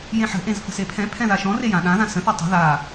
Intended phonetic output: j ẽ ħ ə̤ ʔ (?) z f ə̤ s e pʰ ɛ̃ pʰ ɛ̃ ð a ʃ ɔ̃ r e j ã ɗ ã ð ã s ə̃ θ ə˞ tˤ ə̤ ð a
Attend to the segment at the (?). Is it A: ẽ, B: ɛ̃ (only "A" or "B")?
A